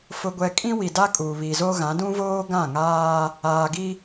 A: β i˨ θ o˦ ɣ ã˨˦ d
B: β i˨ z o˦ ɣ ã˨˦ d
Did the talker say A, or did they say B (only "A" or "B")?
B